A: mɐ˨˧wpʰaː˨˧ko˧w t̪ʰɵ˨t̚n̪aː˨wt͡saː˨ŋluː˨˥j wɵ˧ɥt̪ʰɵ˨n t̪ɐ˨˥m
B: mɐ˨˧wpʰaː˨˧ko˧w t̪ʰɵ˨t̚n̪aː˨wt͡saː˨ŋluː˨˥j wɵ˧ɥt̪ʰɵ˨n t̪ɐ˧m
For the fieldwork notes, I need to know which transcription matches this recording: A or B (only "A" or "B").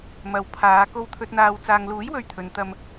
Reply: B